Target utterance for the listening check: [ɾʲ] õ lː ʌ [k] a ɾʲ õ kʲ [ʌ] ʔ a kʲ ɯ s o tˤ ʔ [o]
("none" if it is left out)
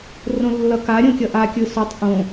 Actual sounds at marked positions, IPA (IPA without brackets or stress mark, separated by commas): r, k, ʌ, õ